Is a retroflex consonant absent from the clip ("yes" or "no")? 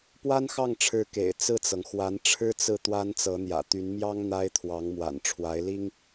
no